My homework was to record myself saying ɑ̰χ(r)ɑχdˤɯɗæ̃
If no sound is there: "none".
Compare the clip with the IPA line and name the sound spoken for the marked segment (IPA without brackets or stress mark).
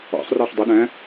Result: r